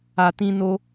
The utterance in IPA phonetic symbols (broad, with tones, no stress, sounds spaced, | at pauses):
a˧ t ĩ˦ n o˦